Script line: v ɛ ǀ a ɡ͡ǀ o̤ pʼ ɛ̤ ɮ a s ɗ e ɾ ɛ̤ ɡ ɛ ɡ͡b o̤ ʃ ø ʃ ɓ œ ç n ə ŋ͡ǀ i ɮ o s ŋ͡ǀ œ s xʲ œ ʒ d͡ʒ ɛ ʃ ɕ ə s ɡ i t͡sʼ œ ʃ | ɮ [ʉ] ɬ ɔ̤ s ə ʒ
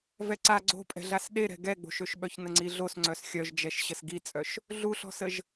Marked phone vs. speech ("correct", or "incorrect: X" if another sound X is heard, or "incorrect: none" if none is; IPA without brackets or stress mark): incorrect: u